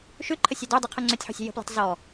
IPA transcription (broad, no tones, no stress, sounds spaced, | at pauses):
ʃ ʉ ǃʰ ə sʲ ɔ d ø dˤ i qʰ u ŋ͡ǀ ø tʲ ħ ṳ sʲ ə̤ j ə̤ p l i̤ tˤ z ɔ